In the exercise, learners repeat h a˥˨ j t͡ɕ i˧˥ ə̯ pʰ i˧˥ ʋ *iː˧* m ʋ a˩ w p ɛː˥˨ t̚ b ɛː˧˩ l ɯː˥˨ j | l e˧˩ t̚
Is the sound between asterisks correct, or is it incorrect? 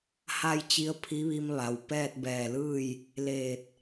incorrect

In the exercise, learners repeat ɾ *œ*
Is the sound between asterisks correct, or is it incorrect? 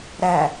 incorrect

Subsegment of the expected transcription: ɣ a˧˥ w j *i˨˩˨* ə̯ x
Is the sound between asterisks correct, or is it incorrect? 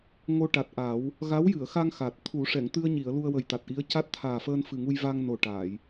incorrect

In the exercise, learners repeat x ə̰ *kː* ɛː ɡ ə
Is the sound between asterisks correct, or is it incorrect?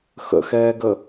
incorrect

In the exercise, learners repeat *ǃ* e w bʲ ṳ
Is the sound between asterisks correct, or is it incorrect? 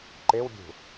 correct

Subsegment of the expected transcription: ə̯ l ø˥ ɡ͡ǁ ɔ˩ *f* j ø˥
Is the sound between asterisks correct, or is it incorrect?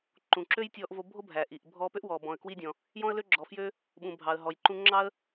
correct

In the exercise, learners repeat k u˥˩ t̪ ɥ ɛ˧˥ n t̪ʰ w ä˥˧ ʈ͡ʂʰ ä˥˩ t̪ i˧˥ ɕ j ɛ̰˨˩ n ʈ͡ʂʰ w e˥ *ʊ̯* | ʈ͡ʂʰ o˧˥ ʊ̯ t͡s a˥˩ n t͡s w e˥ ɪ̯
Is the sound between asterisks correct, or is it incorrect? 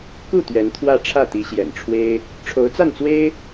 incorrect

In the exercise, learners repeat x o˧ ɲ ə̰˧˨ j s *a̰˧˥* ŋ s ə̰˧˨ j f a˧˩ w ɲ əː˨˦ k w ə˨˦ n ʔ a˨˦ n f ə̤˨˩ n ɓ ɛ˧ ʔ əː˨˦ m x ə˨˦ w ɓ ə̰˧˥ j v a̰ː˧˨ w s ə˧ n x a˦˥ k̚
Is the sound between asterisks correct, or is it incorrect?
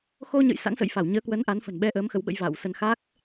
correct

